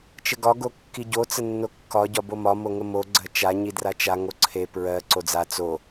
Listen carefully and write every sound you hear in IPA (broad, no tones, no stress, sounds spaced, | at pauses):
t͡ʃ ə ɡ ɒ ɡ o kː i ɟ o t͡s ə nː o kː ɒ ɟ ɒ b o m ɒ m o ŋ ə m o ɡ͡ǀ ɜ t͡ʃ a ɲ i d r a t͡ʃ a ŋ o ǀʰ e p ɹ ɜ ǀ o d͡z a t͡s o